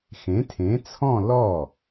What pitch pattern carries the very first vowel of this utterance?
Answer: rising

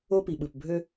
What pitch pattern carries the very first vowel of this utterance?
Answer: high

